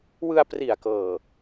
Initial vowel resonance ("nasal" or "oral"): oral